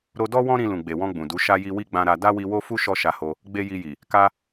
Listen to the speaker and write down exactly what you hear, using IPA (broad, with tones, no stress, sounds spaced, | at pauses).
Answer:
ɾ o˧ d ɔ˦ w ɔ̃˦ ɾ ĩ˧ l ũ˨ ɡ͡b e˨ w ɔ̃˧ ɡ͡b ũ˨ d u˨˦ ʃ a˦ j i˧ w i˦ ɡ͡b ã˧ ɾ a˧ d a˦ w i˧ w o˦ f u˦ ʃ ɔ˦ ʃ a˧ h o˧ | ɡ͡b e˦ j i˧ j i˨ | k a˧